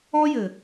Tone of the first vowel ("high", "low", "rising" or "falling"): high